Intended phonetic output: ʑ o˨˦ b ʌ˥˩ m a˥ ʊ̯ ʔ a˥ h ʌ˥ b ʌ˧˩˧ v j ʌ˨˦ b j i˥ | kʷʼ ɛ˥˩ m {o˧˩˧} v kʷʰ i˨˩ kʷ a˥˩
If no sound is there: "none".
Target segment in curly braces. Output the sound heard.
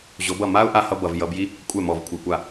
ɔ˧˩˧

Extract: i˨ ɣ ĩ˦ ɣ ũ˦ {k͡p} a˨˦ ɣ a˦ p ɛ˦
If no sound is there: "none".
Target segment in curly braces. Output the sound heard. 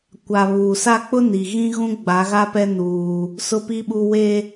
ɡ͡b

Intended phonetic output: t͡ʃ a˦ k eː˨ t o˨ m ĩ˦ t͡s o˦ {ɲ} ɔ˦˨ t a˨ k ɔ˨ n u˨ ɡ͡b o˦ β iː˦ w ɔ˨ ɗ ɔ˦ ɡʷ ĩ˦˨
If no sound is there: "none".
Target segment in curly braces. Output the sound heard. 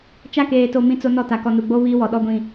n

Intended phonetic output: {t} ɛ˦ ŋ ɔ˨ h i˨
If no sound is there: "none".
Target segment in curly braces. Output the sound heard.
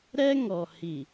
ɾ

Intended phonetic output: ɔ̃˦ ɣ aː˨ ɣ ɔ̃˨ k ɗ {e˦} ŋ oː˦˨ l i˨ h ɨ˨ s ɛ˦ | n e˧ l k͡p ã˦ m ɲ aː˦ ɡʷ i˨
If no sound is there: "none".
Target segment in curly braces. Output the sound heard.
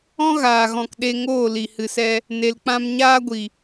e˧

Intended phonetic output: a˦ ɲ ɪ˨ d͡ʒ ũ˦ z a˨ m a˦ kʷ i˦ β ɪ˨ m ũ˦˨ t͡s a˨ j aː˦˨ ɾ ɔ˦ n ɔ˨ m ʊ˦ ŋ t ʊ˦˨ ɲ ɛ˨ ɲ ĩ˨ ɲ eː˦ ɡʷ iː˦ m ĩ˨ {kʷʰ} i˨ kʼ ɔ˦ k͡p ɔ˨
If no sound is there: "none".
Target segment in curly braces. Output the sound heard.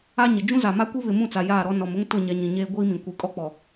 kʷ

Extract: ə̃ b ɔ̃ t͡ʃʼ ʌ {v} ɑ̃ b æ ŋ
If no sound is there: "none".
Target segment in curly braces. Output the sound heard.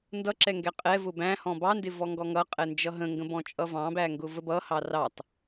v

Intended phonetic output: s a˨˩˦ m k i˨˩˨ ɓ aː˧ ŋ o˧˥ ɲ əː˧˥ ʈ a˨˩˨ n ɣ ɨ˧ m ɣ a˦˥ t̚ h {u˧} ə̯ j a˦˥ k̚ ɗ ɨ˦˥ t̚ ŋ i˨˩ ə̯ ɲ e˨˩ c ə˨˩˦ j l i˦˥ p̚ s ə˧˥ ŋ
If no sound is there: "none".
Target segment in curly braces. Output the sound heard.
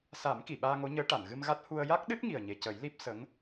u˧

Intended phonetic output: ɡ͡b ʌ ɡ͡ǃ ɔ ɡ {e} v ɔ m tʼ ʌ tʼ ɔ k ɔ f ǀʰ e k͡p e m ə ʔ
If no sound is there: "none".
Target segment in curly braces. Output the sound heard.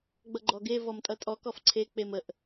e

